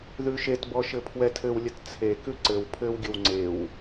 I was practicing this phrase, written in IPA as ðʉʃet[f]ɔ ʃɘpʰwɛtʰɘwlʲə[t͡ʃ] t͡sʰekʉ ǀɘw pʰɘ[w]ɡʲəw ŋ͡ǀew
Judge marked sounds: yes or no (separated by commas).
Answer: no, no, yes